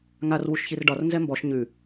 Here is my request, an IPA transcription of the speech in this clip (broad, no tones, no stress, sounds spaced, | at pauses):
ŋ a r w u ʃ ç i r ɖ ɒ r n z ɛ m b ɔ ʃ ɲ ʉ